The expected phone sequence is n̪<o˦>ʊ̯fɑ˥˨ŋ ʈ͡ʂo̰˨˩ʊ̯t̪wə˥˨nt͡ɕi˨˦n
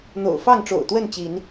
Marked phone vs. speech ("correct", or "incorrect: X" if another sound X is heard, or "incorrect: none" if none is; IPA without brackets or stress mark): incorrect: o̰˨˩